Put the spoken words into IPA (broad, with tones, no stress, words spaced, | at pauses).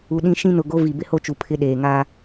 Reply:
u˨ɗĩ˦ ʃĩ˦nʊ˨ ɡo˦ vi˨ bɪ˦ho˦t͡ʃu˨ pʰɪ˦ɗeː˨ŋaː˦